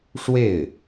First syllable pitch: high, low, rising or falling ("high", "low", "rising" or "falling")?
falling